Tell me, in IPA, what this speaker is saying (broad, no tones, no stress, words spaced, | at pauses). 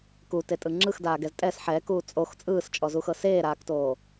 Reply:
kutetʼɯ ŋ͡ǁɯxdaːɡɛz tʼɛs ħɛːkuː t͡sʼox t͡sʼɯːst͡ʃʼɔzuxɤ seːɾaːktoː